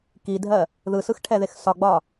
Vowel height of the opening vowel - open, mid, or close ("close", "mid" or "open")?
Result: close